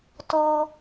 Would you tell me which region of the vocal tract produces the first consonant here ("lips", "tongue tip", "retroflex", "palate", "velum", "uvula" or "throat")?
tongue tip